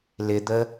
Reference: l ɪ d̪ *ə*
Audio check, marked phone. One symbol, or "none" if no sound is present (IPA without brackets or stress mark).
ə